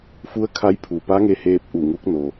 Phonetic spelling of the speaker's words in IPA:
fu˧˥ə̯kʰa˧˥jpʰu˩ pa˧˥ŋe˧heː˧p̚ ʔu˧˩ŋu˧˥k̚no˩

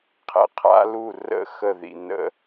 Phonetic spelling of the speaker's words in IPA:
qʰɛ̰˧qʰa̰˦˥lu˥˨ rə̰˥˨ xə˥˨ðḭ˧ nə̰˧

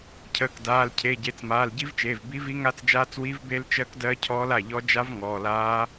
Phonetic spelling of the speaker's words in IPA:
cʰəː˩˧˩kdaː˩˧˩lcʰe˩˧˩ ɟe˩˧˩t͡smaː˩˧˩lɟi˦˥vt͡ʃeː˩˧˩v bi˦˥vi˦˥ŋa˦˥t͡sd͡ʒaː˦˥t͡s wi˦˥vbe˦˥lt͡ʃɜ˦˥kdɜ˦˥ cʰɔː˦˥la˩˧˩ʎɔ˦˥ d͡ʒa˦˥v ŋɔː˩˧˩laː˦˥

